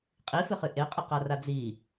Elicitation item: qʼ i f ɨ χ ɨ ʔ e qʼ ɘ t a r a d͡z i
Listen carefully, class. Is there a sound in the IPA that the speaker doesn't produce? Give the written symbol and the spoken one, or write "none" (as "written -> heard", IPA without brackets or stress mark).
t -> q